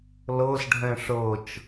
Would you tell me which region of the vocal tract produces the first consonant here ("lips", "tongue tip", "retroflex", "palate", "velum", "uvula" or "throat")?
tongue tip